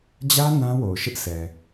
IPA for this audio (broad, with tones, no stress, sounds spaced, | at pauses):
d͡ʑ ä˦ n ã˦ w o˨ ʊ̯ ʃ ɪ˦ ʔ s ɛ˨